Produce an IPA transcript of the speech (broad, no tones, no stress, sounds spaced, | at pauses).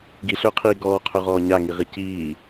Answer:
ɡ i ɬ ɵː qʰ iː ɡ ɔː qʰ ɵ ʁ ɔː ɲ a ŋ i ʁ i c iː